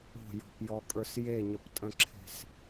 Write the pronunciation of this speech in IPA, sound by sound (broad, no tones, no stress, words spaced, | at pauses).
o̤jɔ̤pjɔkʼə˞s jeɲəptʼə̃ǁʰe̤s